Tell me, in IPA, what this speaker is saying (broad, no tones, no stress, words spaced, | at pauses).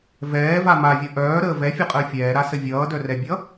vɛːva mavʲʌ ʔœːɾəː vɛfʲʌqʼəː fʲɛːɾasə vʲʌːdœrɛbʲʌ